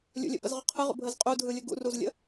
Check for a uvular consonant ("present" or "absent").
present